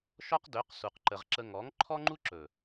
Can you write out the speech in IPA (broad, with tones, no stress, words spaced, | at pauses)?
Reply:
ʃɔ˦qdɵ˨˦q su˨qǃə˨ʁǁə˧ ŋɔ˨˦ŋǃʰɔ˦ŋ͡ǃu˦ ǁɵ˨